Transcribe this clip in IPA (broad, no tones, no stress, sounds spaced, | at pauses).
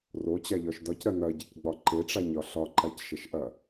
r o t͡ɕ a ʎ ɒ ʃ d ɒ c ɾ ɐ n ɐ ɟ ɐ c ɡ͡b ɒ ǃ e ʈ͡ʂ a ɲ ɒ ɬ ɒ ǃ a c ʃ ɐ ʃ ʔ ɐ